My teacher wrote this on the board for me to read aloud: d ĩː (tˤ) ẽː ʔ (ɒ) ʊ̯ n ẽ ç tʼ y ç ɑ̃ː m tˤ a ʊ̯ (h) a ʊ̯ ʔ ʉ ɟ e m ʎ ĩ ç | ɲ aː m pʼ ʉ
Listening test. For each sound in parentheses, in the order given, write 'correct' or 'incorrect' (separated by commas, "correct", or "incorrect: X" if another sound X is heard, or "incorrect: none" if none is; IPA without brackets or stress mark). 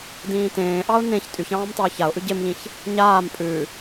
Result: incorrect: t, incorrect: ɑ, incorrect: ç